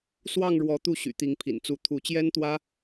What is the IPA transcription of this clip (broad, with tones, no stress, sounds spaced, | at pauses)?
s w ɑ˥˨ ŋ ɻ w ɔ˨˦ t̪ u˥˨ ɕ y̰˨˩ t̪ i˨˦ ŋ pʰ ḭ˨˩ n t͡s u˨˦ t̪ʰ u˨˦ t͡ɕ j ɛ˦ n t̪ w ä˦